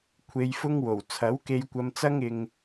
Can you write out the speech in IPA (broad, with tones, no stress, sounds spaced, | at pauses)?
kʷʰ e˧ j f ʊ˥ ŋ w o˨˩ w t͡sʰ ɐ˨˥ w k e˧ j kʷ ɐ˧ m t͡s ɐ˥ ŋ ɪ˧ ŋ